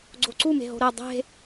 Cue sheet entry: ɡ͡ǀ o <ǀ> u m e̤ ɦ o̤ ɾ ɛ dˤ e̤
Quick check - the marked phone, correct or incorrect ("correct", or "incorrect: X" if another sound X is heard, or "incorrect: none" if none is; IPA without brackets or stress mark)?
correct